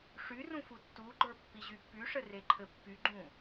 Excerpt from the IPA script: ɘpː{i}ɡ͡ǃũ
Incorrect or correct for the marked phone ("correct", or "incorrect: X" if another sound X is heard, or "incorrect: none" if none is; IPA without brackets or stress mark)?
incorrect: y